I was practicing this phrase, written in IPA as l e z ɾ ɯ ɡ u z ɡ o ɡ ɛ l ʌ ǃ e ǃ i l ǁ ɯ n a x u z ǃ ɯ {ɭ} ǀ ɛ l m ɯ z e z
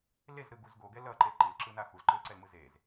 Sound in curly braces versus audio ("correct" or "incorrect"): incorrect